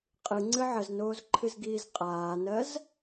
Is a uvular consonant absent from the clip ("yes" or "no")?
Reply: no